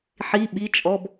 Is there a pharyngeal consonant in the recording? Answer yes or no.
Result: yes